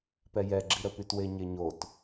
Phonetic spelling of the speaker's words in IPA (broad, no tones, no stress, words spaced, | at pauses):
pɛjɛɡ͡ǁiɾə pytweɲeɲot